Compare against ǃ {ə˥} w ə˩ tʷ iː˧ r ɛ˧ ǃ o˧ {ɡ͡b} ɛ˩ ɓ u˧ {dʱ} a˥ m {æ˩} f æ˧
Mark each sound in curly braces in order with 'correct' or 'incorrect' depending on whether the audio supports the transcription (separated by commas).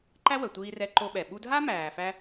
incorrect, incorrect, correct, incorrect